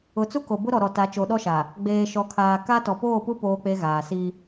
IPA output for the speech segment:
ʊ˨˦ t͡s u˦ k o˨ b ʊ˦ ɾ ɔ˨ ɾ ɔ˨ t a˨˦ t͡ʃ o˨˦ ɗ ɔ˦ ʃ a˨ | ɡ͡b eː˨ ʃ ɔ˨ kʰ aː˨ k a˦ t ɔ˨ p oː˦˨ p u˦ p oː˦ k͡p e˦ ɣ aː˨ s i˦

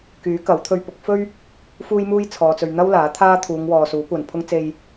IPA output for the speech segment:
k yː˨˥ k ɐ˨˥ w t̪ʰ ɵ˧ ɥ p ʊ˨˥ k̚ f ɵ˥ ɥ | f uː˥ j m uː˥ j t͡sʰ ɔː˨ t͡s ɵ˨ ɥ n̪ ɐ˥ w l aː˨˥ t̪ʰ aː˥ t̪ʰ uː˨˧ ŋ w ɔː˨ s uː˨˥ kʷ ɐ˨ n pʰ ʊ˥ ŋ t͡s e˧ j

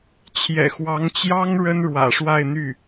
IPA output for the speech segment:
t͡ɕʰ j ɛ̰˨˩ x w ɑ˧˥ ŋ t͡ɕ j ɑ˥ ŋ ɻ ə˥ n ɻ w ä̰˨˩ ʂ w a˥˧ ɪ̯ n̪ y˥˩

